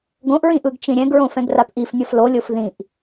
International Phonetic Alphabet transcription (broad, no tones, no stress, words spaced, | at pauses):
ɡõʔɹĩʔɯɡt͡ʃĩ ɾʲɛ̃ɡɹõfɛ̃ɡrap ʔifnʲʌf lolʲof ðĩʔ